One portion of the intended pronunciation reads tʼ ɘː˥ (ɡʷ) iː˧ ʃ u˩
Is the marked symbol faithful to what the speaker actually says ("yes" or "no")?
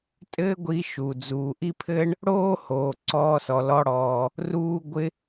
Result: yes